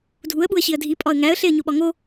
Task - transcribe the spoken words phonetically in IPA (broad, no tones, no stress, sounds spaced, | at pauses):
dʱ u ə̯ ɓ u ə̯ ɕ i ə̯ dʱ i pʼ ɒ ə̯ ŋ æ ə̯ ɬ e ə̯ ɲ o ɓ ɒ ŋ o